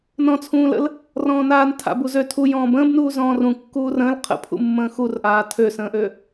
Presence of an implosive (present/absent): absent